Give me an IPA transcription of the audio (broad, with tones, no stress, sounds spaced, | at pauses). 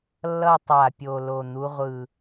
lː ʌ˥˧ tˤ a˨˩ pʲ o˨˩ l o˨˩ n̪ u˨˦ ʁʷ ɯ˨˩